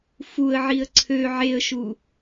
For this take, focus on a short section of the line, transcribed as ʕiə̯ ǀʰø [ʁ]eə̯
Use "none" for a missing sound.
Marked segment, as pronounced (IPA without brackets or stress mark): ʕ